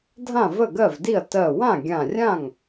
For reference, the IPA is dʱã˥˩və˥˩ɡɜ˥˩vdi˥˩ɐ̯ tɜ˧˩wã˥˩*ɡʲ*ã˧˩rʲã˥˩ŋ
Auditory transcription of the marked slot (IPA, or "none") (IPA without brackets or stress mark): ɡʲ